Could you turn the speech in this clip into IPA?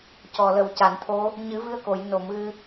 cɔ˨˩lə˨˩wca˨˩˨nt̪ʰo˧˥ | ɲɨ˨˩˦vɨ˧ə̯ko˨˩˨j no˨˩˨m ɣɨ˧

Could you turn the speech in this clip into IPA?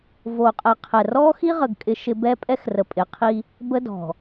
vo˨qʼɛ˨qʰɛ˨ rɔ˦xi˦ʁə˨ɡ kʼɪ˦ʃɪ˦ bɛ˦pʼɛ˦xrə˨ pʼɪ˨qʰi˦ | bə˦dɔ̤˨

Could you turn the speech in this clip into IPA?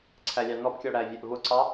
ǀʰælʲɑnɔbkʲɔ ɽævʲæʔvʊǀɑ

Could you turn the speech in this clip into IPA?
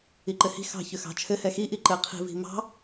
iǃɘhi̤ xɑ̤çʏxɑ̤t͡ʃʰɘ hɛxi ʔiǃɘqʰi̤ vi̤mɑ̤

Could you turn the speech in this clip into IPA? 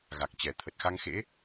ɣa˨˩k̚t͡ɕɛ˨˩ t̪ʰə˨˩t̚xa˧ŋxḛ˧˥

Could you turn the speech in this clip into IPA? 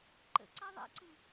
ǃə̰ǀa ðˤa̰ǀɯ

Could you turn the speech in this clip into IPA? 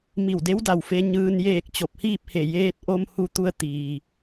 mi˧˩wde˧˥wda˩wfe˧ ɲɯː˩njeː˧˩k̚ t͡ɕo˧˩p̚hiː˥˨p̚he˧˩ jeː˧t̚ʔo˧m hu˧t̪u˧ə̯ t̪iː˩

